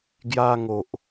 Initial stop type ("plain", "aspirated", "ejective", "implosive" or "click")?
plain